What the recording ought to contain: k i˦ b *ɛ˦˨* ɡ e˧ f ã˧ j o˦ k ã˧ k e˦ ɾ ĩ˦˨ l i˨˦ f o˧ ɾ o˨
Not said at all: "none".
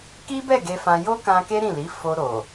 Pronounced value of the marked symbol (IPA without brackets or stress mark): ɛ˦˨